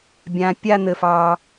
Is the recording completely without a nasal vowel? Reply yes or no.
no